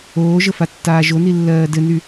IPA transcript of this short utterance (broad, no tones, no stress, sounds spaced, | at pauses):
oː ʒ ə f a tː aː ʒ o n i lː ɜː d ɘ n y